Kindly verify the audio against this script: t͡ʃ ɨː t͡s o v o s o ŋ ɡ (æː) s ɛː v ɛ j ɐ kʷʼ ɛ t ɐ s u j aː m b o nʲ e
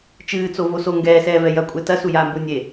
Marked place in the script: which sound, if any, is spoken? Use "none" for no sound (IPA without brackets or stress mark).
ɛː